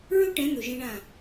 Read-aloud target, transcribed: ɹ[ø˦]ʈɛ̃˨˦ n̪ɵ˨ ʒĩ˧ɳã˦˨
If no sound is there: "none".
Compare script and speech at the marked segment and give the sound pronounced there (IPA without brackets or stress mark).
ɵ˦